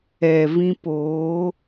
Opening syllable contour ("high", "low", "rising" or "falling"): low